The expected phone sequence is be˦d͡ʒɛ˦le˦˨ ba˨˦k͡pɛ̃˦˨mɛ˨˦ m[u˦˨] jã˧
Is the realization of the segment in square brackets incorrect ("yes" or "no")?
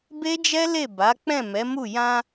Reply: no